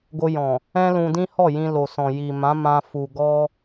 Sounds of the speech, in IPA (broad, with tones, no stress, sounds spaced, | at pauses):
ɡ o˧ j ɔ̃˨ | ɛ̃˦ l ũ˧ d ĩ˦ h ɔ˦˨ j ĩ˧ l o˨ s ɔ̃˨ j i˨ m ã˨˦ m ã˧ f u˨ ɡ ɔ˧